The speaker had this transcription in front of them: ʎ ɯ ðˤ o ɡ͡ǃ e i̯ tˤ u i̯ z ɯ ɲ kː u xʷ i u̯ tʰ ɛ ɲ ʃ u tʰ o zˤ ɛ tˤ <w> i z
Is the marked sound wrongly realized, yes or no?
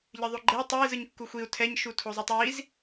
no